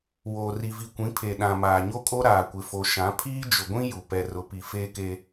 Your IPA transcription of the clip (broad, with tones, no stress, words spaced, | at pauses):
woː˨ri˨vi˨kʷĩ˨˦ pʰe˨ ɗã˨maː˨ɲo˦kʼo˦ ɾaː˨kʷɪ˨fo˨ ʃã˨˦ pʰiː˦d͡ʒʊ˨ɡʷĩ˦ ju˨ pɛ˨rʊ˨pi˨ feː˦ke˦